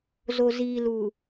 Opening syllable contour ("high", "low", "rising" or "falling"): low